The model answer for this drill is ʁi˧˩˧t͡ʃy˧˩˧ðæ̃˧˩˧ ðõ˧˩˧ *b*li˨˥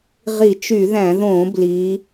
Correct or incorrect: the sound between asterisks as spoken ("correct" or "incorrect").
correct